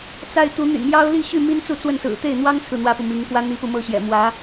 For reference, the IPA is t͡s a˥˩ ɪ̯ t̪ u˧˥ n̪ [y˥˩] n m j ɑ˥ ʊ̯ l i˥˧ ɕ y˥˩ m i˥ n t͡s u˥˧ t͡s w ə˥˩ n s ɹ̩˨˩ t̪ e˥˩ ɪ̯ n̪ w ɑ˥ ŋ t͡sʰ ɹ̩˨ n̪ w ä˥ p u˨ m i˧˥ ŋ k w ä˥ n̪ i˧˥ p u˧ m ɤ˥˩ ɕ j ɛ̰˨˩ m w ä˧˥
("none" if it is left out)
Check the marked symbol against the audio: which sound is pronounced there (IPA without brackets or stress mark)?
y̰˨˩